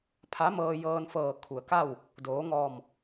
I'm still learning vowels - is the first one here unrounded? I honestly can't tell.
yes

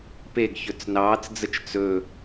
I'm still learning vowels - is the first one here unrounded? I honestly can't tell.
yes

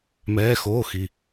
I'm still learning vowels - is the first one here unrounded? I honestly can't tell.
yes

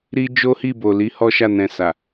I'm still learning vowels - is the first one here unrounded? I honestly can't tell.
yes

